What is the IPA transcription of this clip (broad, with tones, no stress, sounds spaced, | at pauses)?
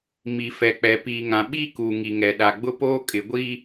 m i˨ f ɛ˨ k͡p ɛ˨ p iː˨ ŋ ã˨ ɓ iː˦ k uː˨ ŋ i˨ ŋ ɛ˨ ɗ a˨ ɡ͡b ʊ˦ p oː˦ kʼ ɪ˨ ɡʷ iː˦